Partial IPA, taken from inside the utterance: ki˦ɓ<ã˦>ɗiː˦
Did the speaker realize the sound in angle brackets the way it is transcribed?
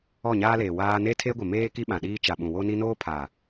no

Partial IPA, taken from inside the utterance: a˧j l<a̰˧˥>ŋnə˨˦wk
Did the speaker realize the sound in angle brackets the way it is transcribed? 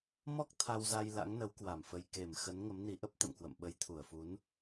yes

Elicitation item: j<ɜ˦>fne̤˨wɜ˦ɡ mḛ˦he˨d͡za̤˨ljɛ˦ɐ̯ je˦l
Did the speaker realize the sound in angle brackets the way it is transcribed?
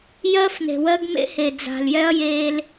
yes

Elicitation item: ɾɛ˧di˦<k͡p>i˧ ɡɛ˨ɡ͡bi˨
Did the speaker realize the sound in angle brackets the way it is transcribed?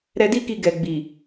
no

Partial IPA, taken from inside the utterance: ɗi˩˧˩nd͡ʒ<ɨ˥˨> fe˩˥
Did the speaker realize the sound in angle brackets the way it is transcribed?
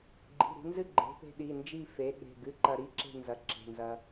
no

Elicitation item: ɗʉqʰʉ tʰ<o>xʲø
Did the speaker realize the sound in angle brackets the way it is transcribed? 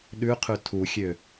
no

